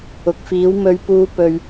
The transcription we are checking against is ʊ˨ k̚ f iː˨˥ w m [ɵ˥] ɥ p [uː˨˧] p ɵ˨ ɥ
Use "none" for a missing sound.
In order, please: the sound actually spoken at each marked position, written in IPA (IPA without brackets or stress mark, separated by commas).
ɵ˨, uː˨˧